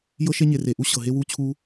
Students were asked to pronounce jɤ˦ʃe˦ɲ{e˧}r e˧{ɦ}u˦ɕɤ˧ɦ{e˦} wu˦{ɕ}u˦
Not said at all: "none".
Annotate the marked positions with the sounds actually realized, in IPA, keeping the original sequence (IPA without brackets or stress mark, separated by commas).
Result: e˧, ʔ, e˦, t͡ɕʰ